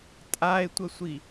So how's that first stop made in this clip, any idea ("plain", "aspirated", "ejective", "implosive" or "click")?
ejective